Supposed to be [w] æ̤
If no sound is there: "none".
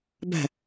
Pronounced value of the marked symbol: b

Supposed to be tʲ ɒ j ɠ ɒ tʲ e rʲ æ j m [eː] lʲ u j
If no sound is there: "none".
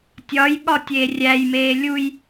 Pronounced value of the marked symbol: eː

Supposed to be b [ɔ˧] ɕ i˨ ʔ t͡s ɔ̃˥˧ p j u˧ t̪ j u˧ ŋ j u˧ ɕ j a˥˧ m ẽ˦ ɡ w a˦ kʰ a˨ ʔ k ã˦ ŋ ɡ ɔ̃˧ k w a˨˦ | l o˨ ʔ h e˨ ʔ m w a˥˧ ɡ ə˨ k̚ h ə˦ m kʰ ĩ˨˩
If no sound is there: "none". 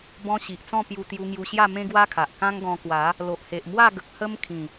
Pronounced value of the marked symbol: ɔ̃˧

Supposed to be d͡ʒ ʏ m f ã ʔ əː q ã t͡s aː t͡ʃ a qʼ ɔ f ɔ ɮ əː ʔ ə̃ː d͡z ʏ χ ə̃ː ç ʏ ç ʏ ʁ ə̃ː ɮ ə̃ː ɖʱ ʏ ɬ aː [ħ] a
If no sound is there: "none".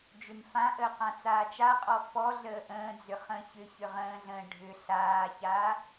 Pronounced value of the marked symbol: ç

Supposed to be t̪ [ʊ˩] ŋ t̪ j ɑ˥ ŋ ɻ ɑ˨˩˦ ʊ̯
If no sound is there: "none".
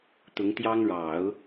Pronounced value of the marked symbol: ʊ˧˥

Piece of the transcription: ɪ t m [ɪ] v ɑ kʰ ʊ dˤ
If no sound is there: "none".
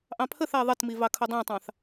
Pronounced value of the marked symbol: i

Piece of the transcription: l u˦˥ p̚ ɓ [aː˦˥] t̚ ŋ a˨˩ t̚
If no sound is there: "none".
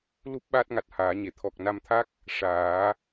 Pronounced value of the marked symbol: aː˦˥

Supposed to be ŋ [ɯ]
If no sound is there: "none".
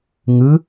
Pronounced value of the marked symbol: ɯ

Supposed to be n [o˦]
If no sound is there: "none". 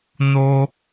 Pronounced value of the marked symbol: o˦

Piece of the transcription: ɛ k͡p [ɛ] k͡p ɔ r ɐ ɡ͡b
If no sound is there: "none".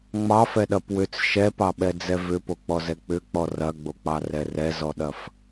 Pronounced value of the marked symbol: ʏ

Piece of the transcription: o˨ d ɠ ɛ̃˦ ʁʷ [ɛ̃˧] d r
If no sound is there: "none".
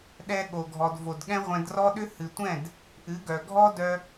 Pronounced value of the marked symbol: ɛ̃˧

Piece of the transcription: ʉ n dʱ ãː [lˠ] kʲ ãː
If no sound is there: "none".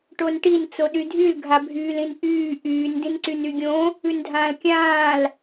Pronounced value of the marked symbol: l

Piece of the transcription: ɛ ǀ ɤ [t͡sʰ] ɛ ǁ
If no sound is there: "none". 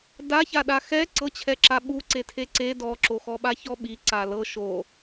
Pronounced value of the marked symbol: t͡ɕʰ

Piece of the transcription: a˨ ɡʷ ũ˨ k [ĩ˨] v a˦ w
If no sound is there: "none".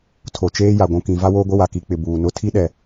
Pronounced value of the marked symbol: ĩ˨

